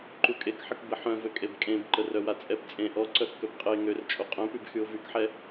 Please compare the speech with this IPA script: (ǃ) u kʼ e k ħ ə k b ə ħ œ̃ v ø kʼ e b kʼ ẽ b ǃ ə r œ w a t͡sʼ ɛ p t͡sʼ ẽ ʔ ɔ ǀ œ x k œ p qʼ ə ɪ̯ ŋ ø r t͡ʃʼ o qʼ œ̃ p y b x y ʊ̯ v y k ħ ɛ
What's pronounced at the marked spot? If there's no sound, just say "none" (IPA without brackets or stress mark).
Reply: ǃ